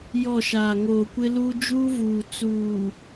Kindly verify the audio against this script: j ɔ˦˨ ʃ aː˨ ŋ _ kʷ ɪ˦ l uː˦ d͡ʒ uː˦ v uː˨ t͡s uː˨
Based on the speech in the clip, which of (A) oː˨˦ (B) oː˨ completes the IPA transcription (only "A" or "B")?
B